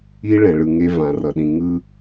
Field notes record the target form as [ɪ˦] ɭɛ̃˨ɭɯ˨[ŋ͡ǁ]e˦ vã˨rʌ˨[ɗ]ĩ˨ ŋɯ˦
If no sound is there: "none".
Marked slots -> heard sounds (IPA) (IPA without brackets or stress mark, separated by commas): i˦, ŋ, ɗ